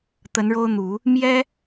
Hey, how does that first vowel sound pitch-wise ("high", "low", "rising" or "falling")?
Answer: rising